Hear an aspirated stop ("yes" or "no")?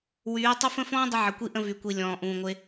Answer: no